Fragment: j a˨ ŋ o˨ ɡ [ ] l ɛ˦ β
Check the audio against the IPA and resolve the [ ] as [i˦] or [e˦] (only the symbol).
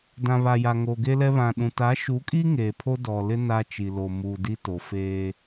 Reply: e˦